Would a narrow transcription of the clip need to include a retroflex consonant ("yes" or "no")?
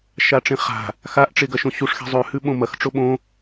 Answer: yes